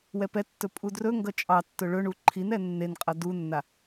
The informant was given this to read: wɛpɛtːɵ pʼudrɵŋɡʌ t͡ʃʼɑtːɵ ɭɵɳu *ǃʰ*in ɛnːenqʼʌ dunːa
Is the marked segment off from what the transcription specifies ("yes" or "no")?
no